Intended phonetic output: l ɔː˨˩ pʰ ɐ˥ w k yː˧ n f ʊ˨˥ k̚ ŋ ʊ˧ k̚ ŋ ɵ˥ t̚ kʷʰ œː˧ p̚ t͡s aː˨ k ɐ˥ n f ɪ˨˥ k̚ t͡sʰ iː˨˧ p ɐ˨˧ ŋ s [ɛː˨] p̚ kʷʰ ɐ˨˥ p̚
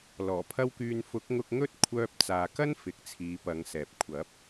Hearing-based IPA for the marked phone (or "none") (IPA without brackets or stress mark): ɛː˨